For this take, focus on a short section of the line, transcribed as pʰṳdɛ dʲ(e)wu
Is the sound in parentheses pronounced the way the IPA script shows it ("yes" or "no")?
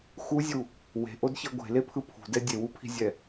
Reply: yes